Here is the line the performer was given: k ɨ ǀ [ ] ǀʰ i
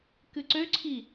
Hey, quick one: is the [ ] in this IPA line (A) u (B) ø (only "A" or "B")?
B